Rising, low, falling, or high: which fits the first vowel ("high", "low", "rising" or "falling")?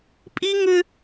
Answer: high